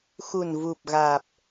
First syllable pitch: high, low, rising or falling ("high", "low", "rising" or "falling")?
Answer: low